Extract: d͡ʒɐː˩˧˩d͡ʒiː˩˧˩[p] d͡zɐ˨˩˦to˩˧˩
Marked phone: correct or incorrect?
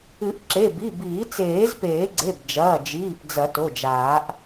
correct